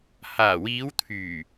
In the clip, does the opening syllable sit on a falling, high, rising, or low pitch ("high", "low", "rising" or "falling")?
low